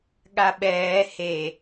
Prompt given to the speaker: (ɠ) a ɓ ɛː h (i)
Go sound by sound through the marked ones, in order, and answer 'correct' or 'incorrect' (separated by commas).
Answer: correct, incorrect